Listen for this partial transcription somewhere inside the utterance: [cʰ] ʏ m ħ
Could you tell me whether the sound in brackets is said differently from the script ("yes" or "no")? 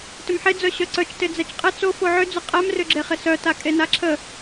yes